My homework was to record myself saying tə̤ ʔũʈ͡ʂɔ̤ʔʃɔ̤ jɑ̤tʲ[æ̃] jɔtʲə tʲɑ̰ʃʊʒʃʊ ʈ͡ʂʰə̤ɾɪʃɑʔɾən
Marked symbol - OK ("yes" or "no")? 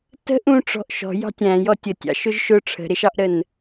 yes